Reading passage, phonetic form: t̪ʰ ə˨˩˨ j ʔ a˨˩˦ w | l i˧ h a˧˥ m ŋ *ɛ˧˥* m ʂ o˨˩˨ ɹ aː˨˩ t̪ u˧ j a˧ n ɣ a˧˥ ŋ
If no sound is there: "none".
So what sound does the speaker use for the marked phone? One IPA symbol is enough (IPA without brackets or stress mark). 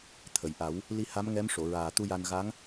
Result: ɛ˧˥